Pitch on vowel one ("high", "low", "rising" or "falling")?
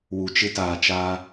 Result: low